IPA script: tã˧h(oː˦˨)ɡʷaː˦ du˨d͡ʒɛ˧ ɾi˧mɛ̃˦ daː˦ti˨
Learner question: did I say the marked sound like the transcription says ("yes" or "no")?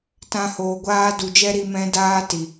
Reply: no